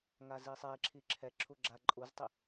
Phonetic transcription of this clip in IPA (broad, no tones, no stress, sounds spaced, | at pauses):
ŋ a z i sˤ ɛ e̯ ǁʰ i ǁʰ ɛ ǁʰ u ɡ͡ǁ a ǃʼ u z tˤ i